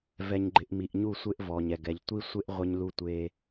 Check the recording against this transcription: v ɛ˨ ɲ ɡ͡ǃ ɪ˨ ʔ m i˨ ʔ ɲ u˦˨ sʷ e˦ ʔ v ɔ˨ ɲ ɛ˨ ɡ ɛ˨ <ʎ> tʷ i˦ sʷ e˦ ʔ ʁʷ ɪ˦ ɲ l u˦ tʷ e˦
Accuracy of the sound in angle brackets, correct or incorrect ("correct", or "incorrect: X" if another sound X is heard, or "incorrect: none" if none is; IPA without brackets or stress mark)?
correct